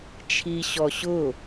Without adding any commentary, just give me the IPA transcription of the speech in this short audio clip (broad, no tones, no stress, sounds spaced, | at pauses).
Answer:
t͡ʃʰ i ɕ ɔ ɕ ʊ